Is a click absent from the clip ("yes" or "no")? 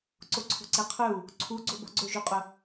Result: no